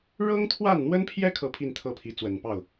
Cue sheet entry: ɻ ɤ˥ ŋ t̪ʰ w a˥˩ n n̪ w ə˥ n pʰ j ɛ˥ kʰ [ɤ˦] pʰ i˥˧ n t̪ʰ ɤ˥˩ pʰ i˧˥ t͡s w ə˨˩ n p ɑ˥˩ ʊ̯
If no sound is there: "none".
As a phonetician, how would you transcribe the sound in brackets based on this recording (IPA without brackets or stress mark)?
ɤ˥˧